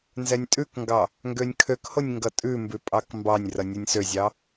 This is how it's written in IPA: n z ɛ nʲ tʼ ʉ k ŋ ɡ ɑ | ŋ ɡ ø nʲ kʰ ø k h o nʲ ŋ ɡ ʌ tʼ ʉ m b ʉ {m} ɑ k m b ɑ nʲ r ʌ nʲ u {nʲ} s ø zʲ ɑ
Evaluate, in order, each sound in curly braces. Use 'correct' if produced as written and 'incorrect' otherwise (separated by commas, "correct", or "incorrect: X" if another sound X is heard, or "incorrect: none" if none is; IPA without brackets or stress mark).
incorrect: pʼ, correct